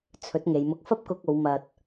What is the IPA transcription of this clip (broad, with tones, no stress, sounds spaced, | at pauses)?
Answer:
t͡sʰ ɵ˨˥ t̚ ŋ e˨˧ j m ʊ˧ k̚ f ɐ˥ p̚ k ʊ˧ k̚ o˨˧ w m ɐ˨ t̚